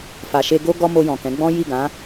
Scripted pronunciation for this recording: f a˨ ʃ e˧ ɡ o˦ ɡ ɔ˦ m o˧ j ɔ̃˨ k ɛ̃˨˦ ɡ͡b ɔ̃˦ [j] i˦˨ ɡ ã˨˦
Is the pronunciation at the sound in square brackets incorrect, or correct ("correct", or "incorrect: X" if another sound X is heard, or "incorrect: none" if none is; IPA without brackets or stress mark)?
correct